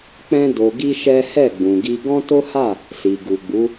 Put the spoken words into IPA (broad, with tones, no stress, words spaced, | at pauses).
k͡pɛ̃˦ do˧ɡi˦ʃɛ˦ hɛ˦˨ɡ͡bũ˨ɡi˧ ɡɔ̃˦to˦ha˦˨ | si˨ ɡu˨ɡ͡bu˨˦